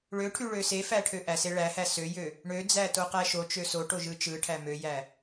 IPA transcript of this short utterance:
ɭøʈʰyɭø sefæʈʰø ʔæse ɭæhæ søjø | ɳød͡zætoqæ ʃot͡ʃø soʈoʒɯ t͡ʃɯʈʰæ møjæ

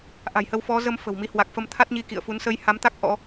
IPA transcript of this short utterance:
ʔa̤˨˩jhə˧wfɔ˨˦ zə˧m fə̤˨˩wmi˨˦hwa˨˩k̚ fə˧mt̪ʰa˦˥t̚ɲi˨˦ kḭ˧˨ə̯fu˨˦n sə˧jha˨˦mt̪a˦˥k̚ ʔɔ̰˧˥

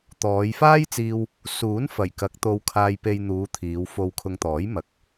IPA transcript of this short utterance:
t̪ɔː˨˧jfaː˥jt͡siː˧w | suː˨˥n fɐ˨˩jkɐ˨˥k̚ t̪o˧wkʰaː˧jpe˧j n̪uː˨˧ t̪ʰiː˨˧w fo˧wkʰʊ˧ŋt̪ɔː˨˥j mɐ˨˥k̚

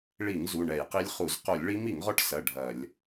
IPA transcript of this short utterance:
ɭi˧˩˧ŋ zu˩˧˩ɳɛ˧˩˧jqi˦˥lʲχu˧˩˧z qo˧˩˧lʲɭi˦˥m i˧˩˧ŋʁɔ˦˥ʈsɐ˩˧˩ ɖʱɐ˧˩˧lʲ

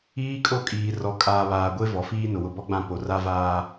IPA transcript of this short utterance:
iː˦kʼo˦kʼiː˨ rɔ˨kʼaː˨βaː˨ ɡʷe˦ vɔ˨fiː˦nʊ˨ wʊ˨bɔ˦ ɡ͡bã˦po˨ ra˦vaː˦

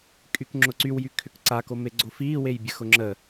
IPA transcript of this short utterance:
kʼykŋ͡ǁʊǀywjy kʰʏkǀakome ɡ͡ǀofiːwejbʲə xʊŋ͡ǁə

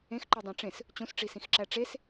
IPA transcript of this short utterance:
ẽxǃodˤæ̃ ʈ͡ʂẽs | t͡ɕũsʈ͡ʂisĩxǁæ ʈ͡ʂes

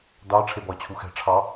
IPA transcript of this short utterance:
dɑ ʈ͡ʂʰebɔə̯t͡ɕʰuxɛ̤ ʈ͡ʂʰɑ

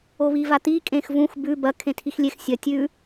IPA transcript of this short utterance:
oβivat̪i kʼẽxvũx bʉ bɐ kʰẽtʰixlʲex sʲɐ tʲʉ

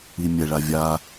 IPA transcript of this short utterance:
imʲɛ ɭavʲa

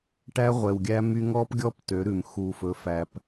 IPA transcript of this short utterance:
ʈæ˦ʁʷɛ˨wɡʲæ˦my˦ ŋɔ˦pɡʲɔ˦p tø˨˦ɾʉ˨m xu˨fɵ˨˦fæ˨p

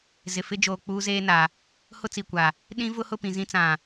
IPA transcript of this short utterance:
zɪ˨fɪ˦d͡ʒoː˨ k͡puː˦zeː˦na˨ | hʊ˦t͡si˨kʷa˨ | ɗĩ˦ vʊ˦hʊ˦˨pĩ˨ zĩ˦ t͡sã˨

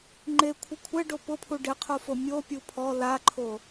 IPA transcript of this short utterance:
ŋ͡ǃekʷʰɪ kʷʰɛɖo pʊpʰu ɖɪqʰofo mʲopʲu pʰɔ laǃʰo

